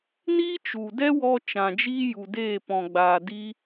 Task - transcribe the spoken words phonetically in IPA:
niː˦t͡ʃu˨ dɛ˦wɔ˧ t͡ʃã˨d͡ʒiː˦ju˨deː˦˨ pɔ̃˨ɡ͡baː˨di˧

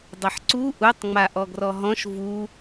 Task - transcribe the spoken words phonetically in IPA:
dˤeħǀu ʔutˤŋ͡ma ʔɔɡrɔɦɔ̃ʃ vu

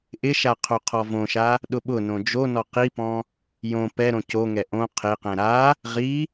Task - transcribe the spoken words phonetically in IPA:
ʔɪʃa qʰoqʰɔvõʃa | ɗʊɓʊnõ d͡ʒonɔ qipɔ̃ | jõ pɛɾõ coŋɛ ʔõ qʰeqɛ̃ ɾa | ʁi

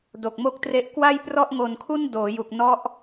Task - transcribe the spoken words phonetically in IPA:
do˨˩k̚mo˥˩k̚tre˦˥ʔ kwa˥˩j prɔ˥˩ʔŋo˧nkʰu˥˩n doː˩˦ju˨˩k̚ nɔ˦˥ʔ

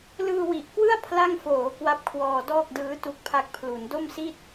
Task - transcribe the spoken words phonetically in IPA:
lɯː˧wi˨˩ʔkwɯ˥˩a̯ pʰla˥˩ŋ foː˩˦ kwa˦˥p̚kʰwɔː˧dɔː˥˩k̚dɯː˦˥ tu˥˩k̚pʰa˥˩k̚ pʰlu˩˦ndo˥˩msi˥˩t̚

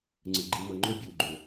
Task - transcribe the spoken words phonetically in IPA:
ŋ͡ǀɯ˨ ɡ͡ǃi˨mɤ˨ŋ͡ǃo˦ bʲuː˨ɡ͡ǃo˨

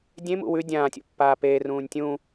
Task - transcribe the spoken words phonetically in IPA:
dʲẽmṵ wʉ dʲãːtʲo̰ pːaːpeːrũːnʲ tʲũ

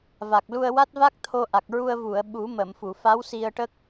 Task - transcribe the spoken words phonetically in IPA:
va˨˩k̚lu˧ə̯wa˦˥t̚va˦˥k̚ t̪ʰo˧ʔa˨˩k̚ɹu˧ə̯ vu˨˩˨ə̯ ɓu˨˩˦mə˨˩˨m fu˨˩˨fa˧˥wsi˧ə̯ʈə˦˥k̚

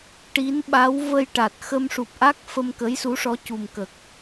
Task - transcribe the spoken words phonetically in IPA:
ʈi˧˥nɓa˧˥w və˧jʈa˨˩t̚ xə˧m ʂu˨˩p̚ʔa˦˥k̚ fə˧mkə˧˥jsu˧˥ʂɔ˧˥ cu˨˩mkə˨˩k̚

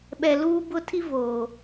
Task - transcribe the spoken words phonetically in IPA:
ɓɛ˨luː˦bʊ˦tʰi˦ voː˨

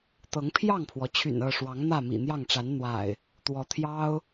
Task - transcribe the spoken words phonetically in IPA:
t̪ɤ˨˦ŋpʰjɑ˥˨ŋpʰwɔ˩t͡ɕʰy̰˨˩n ɤ˥˨ʂwɑ˨˦ŋ n̪ä˥˨mḭ˨˩n̪jɑ˥˨ŋʈ͡ʂa˨˦n n̪wa̰˨˩ɪ̯ | t̪wɔ˨˦t̪ʰjɑ˦ʊ̯

